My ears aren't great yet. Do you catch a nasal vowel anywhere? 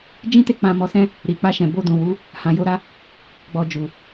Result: yes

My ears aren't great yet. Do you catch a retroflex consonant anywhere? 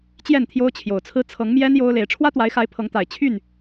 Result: yes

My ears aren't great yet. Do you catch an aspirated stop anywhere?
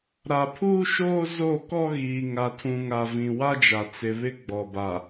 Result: yes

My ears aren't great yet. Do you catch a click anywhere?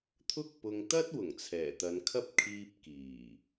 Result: no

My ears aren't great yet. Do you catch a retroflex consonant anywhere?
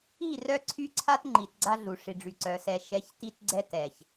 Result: yes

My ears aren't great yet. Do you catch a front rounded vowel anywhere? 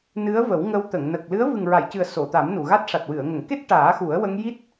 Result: no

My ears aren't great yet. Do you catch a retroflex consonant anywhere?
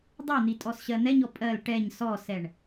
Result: yes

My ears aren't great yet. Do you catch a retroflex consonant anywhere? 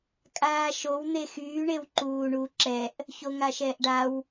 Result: yes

